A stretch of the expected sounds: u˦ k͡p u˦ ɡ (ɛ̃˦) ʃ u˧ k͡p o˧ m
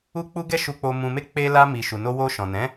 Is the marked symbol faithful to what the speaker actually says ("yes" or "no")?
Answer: no